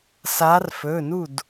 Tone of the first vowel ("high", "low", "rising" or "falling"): rising